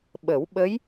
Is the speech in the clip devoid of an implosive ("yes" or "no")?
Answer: no